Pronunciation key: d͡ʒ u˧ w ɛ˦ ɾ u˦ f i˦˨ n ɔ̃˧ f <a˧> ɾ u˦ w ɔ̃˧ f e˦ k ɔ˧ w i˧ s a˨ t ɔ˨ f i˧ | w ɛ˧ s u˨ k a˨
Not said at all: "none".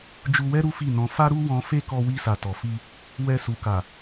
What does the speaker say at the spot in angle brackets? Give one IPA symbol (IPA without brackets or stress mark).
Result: a˦